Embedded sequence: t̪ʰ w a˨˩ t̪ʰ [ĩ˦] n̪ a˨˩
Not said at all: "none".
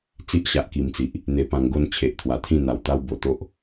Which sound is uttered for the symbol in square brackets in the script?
ĩ˥˧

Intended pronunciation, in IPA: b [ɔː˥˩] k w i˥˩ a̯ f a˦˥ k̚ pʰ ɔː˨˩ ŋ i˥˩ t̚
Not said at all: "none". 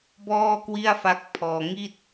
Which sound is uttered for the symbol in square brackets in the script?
ɔː˥˩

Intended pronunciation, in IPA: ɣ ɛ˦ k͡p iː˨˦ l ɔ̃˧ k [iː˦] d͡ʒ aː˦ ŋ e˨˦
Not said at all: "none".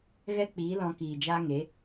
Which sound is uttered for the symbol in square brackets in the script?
iː˨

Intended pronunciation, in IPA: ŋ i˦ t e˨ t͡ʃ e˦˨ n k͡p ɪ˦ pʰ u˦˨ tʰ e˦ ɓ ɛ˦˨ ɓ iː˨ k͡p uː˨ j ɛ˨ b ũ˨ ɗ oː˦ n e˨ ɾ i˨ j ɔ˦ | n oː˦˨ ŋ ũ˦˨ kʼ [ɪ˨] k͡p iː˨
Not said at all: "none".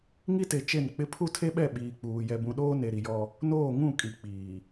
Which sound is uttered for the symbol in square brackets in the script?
i˨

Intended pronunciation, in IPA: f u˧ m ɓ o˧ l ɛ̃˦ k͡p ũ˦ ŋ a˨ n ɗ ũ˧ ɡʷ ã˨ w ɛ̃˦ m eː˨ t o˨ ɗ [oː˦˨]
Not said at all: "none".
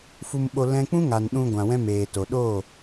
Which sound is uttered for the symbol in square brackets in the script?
oː˦˨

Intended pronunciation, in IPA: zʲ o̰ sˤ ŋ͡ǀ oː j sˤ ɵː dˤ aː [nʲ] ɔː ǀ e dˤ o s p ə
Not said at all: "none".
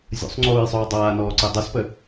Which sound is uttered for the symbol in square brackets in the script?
n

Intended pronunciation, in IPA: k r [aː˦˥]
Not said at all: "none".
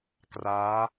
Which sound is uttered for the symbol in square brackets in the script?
aː˦˥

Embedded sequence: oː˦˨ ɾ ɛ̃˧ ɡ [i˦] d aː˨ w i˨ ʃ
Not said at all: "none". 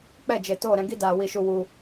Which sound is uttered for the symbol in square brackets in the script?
i˦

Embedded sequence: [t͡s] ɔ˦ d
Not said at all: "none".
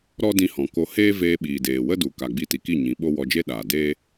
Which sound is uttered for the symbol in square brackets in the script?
ɾ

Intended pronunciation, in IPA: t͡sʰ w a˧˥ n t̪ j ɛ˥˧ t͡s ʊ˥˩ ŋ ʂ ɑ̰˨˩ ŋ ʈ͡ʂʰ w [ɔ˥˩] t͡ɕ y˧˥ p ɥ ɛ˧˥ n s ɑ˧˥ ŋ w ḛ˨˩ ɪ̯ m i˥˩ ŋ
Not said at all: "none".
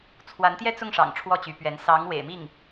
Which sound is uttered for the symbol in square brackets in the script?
ɔ˥˩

